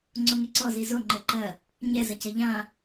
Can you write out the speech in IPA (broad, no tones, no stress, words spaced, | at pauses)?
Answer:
ŋ͡ǀoŋeǀɔ zizo ŋ͡ǃɘǃɐ | ɲɛ zɐcɐʎã